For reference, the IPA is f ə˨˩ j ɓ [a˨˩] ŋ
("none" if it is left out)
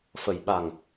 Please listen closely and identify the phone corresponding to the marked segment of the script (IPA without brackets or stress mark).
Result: a˨˩